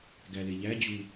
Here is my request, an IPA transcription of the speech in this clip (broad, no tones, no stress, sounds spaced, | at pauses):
ɡ æ l e ʎ æ d͡ʑ u